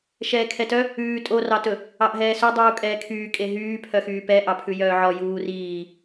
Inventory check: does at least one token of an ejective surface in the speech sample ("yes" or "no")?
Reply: yes